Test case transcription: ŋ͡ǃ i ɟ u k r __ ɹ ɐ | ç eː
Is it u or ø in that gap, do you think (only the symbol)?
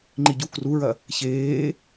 u